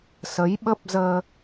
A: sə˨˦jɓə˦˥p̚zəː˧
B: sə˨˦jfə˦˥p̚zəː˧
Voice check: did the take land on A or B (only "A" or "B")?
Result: A